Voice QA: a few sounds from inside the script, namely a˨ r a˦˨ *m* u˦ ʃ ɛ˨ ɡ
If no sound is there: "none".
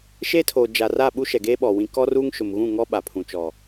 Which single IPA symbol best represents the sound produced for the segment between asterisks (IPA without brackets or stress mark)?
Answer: ɓ